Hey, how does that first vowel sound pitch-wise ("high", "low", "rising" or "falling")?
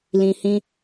low